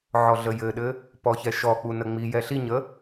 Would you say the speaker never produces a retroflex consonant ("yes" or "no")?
yes